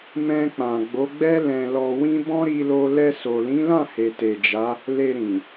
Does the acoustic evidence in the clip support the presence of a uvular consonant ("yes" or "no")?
no